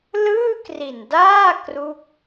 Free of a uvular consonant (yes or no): yes